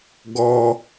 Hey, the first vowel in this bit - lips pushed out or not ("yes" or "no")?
yes